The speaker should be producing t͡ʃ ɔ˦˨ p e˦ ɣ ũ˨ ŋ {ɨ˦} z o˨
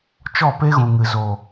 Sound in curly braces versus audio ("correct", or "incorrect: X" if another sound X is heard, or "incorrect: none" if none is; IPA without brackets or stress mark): incorrect: ɨ˨